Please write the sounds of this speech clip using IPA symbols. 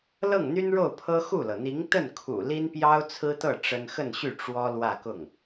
lɤ˥˩ŋn̪y˥nɻo˥˩ʊ̯ pʰɤ˥xu˥˩lɤ˩ n̪i˧˥ŋt̪ə˥˩nkʰṵ˨˩ li˥npjɑ˥ʊ̯ t͡sʰɹ̩˥t̪ɤ˥˩ ʈ͡ʂə˥n xə˥˧nɕy˥˩ ʈ͡ʂwɔ˥ lwä˥˧kʊ˥˩ŋ

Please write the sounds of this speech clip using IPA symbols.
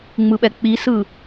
ŋ͡mɯɓɛk͡pisɯ

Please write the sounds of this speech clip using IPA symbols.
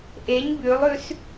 ʔeɲ bʉlˠʉs

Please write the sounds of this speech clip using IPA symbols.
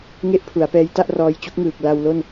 ŋe˥˩ʔpʰu˩˦a̯pɛː˦˥jta˥˩ʔ rɔː˧jt͡ɕu˦˥k̚ŋɯː˨˩k̚ la˧wlo˥˩n

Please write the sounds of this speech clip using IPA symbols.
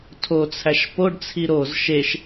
tʰot͡sʰæʃ poɖt͡sʰi ɾoz ʃeʃ

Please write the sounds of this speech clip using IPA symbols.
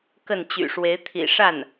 kə˥˩nt͡ɕy̰˨˩ ʂwe˧˥ɪ̯t̪ʰḭ˨˩ ʂa˥˩n

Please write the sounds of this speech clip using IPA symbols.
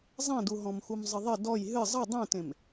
zˤẽdu ɦɔ̃mxumzˤɨðˤɘ dɔj ɦɨ zˤɨ dˤũtẽm

